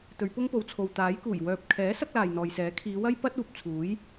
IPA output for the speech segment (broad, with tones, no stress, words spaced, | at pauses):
t̪ɵ˨˧ɥpʊ˥ŋpo˨wt͡sʰo˨w t̪aː˨˥jkuː˨˩j wœː˨p̚kʰɛː˨˥ sɐ˥k̚laː˨jn̪ɔː˨jsɛː˨˥ kʰiː˨˧wɐ˥j pɐ˥t̚uː˨p̚ t͡sʰuː˨˥j